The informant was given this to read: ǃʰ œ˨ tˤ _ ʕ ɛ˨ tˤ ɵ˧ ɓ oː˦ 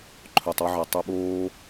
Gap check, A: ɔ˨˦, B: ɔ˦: B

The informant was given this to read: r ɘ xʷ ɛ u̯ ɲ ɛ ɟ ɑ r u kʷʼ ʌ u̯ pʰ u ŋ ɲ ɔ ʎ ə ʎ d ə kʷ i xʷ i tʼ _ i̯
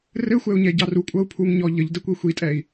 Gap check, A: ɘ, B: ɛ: B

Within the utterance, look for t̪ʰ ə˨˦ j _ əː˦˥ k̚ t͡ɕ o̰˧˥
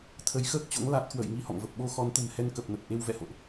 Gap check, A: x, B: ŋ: A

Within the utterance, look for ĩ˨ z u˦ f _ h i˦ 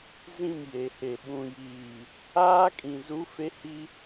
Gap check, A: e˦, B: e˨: A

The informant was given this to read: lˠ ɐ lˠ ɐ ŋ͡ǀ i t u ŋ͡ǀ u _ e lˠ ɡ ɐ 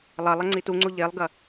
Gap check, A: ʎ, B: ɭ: A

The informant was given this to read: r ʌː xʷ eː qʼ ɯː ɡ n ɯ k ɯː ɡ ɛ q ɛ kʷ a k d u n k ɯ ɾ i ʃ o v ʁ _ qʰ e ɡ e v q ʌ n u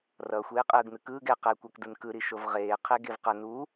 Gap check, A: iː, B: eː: B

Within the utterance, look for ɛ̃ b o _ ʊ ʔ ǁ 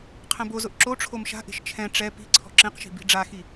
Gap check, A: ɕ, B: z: B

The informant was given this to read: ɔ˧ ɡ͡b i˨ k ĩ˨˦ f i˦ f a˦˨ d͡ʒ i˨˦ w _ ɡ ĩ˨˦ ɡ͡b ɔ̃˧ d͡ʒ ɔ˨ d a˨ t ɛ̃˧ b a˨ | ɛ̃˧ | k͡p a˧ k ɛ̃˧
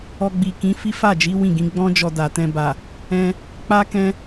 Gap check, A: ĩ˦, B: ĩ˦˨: B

